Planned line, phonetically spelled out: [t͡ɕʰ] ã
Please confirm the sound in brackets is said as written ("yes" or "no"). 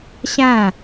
no